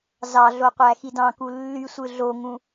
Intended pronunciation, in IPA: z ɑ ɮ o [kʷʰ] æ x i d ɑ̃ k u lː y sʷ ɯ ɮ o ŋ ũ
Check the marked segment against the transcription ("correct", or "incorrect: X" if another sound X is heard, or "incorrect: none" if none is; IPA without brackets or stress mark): incorrect: qʷ